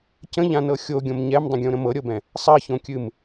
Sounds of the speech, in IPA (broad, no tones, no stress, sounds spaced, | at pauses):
c ə̃ ʎ ã n ɤ xʲ o ɡʲ õ m ɲ ɛ m dˤ ə̃ ɡʲ õ ɾ ə̃ m ɤ ɾʲ ɤ b ɛ̃ | sˤ ɜ ç õ kʲ ɨ m